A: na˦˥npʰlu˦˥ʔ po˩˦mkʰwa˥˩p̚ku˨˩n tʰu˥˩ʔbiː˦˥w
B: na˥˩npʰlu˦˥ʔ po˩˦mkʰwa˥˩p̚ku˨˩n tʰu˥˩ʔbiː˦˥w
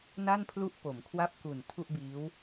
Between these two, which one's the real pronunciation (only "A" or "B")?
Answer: B